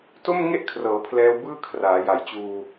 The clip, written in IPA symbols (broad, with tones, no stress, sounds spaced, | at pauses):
t o˥˩ m ŋ e˥˩ ʔ kʰ r ɤː˩˦ pʰ l ɛː˦˥ w b ɯː˥˩ kʰ r aː˩˦ j a˨˩ j t͡ɕ uː˧